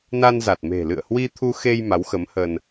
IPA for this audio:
n a˧ n z a˨˩ t̚ m e̤˨˩ l ɨ̰˧˨ ə̯ h w i˧ t̪ʰ u˧ x e˧ j m a˨˦ w x ə˨˦ m h ə˧ n

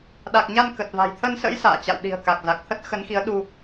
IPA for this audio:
ɗ a˨˩ k̚ ɲ a˧ n k ə˨˩ t̚ v a̤˨˩ j t̪ʰ ə˧ n s ə̰˧˥ j s a̰ː˧˨ t͡ɕ a̰˧˨ w ɗ i̤˨˩ ə̯ k a˨˩ k̚ z a˨˩ k̚ t̪ʰ ə˦˥ t̚ x ə˨˦ n x i˨˦ ə̯ ɗ u˧

